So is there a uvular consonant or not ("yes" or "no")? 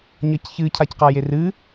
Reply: yes